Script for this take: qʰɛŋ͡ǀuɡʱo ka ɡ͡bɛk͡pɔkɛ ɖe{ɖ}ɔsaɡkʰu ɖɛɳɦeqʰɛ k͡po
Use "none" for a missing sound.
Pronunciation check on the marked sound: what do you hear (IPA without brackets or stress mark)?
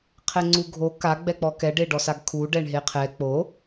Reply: ɖ